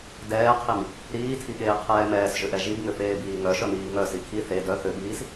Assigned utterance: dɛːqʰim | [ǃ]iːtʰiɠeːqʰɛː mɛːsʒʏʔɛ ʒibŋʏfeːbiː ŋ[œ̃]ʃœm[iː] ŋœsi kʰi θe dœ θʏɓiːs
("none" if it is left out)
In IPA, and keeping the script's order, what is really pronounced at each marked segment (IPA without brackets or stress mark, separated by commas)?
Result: ɾ, œ, iː